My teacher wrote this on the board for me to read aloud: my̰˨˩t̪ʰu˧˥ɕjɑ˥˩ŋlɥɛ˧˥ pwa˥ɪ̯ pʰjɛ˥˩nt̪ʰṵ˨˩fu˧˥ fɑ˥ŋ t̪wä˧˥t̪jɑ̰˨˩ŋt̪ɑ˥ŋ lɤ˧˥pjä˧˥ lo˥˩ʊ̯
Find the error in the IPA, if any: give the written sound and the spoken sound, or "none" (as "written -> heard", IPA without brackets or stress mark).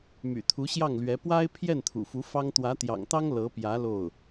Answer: none